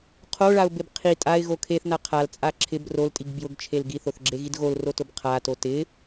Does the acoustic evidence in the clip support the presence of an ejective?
yes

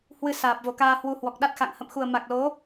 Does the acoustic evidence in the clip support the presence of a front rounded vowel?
no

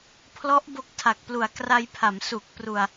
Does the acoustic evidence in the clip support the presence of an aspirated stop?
yes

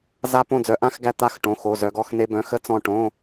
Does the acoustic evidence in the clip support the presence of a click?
no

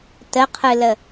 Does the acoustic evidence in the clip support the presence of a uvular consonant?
yes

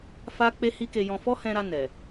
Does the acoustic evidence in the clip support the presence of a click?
no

